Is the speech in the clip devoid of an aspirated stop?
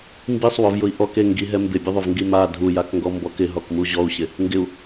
yes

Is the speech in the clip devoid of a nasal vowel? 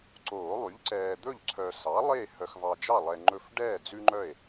yes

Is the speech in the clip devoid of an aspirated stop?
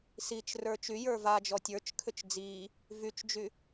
no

